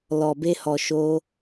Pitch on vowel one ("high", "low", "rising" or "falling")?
low